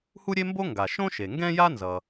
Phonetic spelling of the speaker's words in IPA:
h u˥ ɾʲ e˥ m b o˥ ŋ ɡ a˩ ʃ õ˥ ʃ e˩ ŋ ɡ ɛ̃˥ j a˥ n z ʌ˩

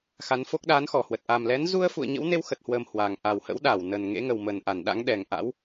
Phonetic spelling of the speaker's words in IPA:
x a˨˦ n f o˦˥ k̚ ɗ aː˨˦ n x ɔ˧˩ h w ə˨˩ t̚ ʔ a˨˩ m l ɛ˨˦ n z u˧ ə̯ f ṵ˧˨ ə̯ ɲ ə̰˧˥ w n e˧ w x ə˨˩ t̚ h w əː˨˩ m h w a˨˩ ŋ ʔ a˨˩ w h ə̰˧˥ w ɗ a˧˩ w n ə˨˩ n ŋ ḛ˧˥ ŋ ə˨˩ w m ə˨˩ n ʔ a˧˩ n ɗ a̰˧˥ ŋ ɗ ɛ˨˩ ŋ ʔ a̰˧˥ w

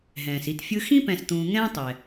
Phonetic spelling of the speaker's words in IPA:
ɦ ɛ̃ː˩ s i˨ t fʲ ɯ˦ x ĩ˥ p ɛ̃˨ s t̪ ũː˨ ŋ ɛ̃ː˥ tˤ ɛ˩

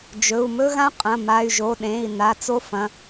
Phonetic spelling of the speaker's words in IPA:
d͡ʒ ɵ˩˧˩ u̯ m ɵ˦˥ ɣ ã˦˥ qʼ ɐ̃˩˧˩ m a˩˧˩ y̯ ʒ o˩˧˩ ɗ ẽ˩˧˩ i̯ n a˩˧˩ t͡s o˦˥ f ɐ̃˩˧˩

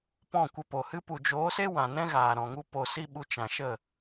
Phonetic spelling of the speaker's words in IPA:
p ɔ̃˦˨ kʷ ə˧ p o˨ h ɨ˦ p u˨ d͡ʒ oː˨˦ s e˦ w ã˨ n ɛ̃˦ ɣ aː˨ ɾ ɔ̃˨ ŋ u˦ p o˨ s i˧ ɓ u˧ t͡ʃ ã˨ ʃ ə˦˨

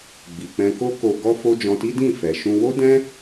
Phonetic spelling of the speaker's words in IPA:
ɡ͡b i˨ k͡p ɛ̃˧ k o˦ k o˧ ɡ ɔ˦ f o˦ d͡ʒ ɔ̃˧ t i˦ d ĩ˦˨ f ɛ˨ ʃ ũ˧ w o˦ d ɛ̃˦

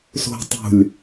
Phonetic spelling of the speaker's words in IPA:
s o̤ tˤ ṳ lʲ

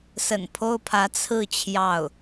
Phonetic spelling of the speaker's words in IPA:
s ə̰˨˩ n pʰ o˥ ʊ̯ pʰ ä˧˥ t͡sʰ ɹ̩˥˧ t͡ɕʰ j ɑ˥˩ ʊ̯

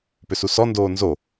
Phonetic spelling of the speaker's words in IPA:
p ʏ s u s ɔ n d oː n z o

